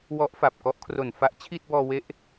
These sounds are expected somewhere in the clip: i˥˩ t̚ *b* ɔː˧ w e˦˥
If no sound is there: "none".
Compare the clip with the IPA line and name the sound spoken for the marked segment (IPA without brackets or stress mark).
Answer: b